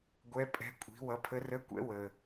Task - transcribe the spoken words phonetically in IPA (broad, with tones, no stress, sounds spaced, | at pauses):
ɡʷ ɛ˧˥ pʼ ɛ̤˧˥ kʷʼ i̤˩˥ w ʌ˩˥ pʰ ə˧˥ r ə˧˥˧ kʷ ɛ̰˧˥ w ə˩